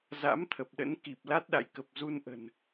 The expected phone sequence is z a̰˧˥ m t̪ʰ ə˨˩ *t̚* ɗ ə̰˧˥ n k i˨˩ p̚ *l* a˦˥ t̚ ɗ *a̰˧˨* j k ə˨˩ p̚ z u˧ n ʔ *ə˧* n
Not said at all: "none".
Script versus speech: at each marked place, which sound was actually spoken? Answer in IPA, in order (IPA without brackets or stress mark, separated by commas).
p̚, l, a̰˧˨, ə̤˨˩